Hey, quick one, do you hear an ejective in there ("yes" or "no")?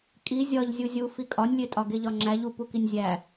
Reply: yes